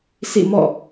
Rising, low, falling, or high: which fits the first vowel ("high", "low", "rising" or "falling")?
falling